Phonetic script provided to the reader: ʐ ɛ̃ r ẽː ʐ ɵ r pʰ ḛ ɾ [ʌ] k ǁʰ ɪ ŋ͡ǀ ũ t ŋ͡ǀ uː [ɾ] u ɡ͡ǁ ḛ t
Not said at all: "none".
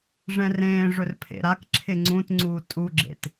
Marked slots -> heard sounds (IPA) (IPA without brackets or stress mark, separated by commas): a, tʼ